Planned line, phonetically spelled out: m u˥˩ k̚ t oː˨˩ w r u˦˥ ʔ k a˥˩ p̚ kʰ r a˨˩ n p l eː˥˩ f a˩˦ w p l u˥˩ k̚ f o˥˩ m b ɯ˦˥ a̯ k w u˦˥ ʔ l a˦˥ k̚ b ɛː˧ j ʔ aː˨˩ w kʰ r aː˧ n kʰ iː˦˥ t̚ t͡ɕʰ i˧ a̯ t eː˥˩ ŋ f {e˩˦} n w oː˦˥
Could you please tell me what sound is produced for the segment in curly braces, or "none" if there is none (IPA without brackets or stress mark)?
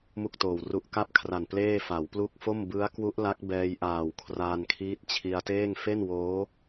e˥˩